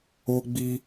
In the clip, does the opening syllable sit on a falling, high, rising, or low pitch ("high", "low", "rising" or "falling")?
high